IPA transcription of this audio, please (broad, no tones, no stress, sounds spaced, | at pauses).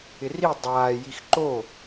ɪ r i dˤ aː j i x ǃ o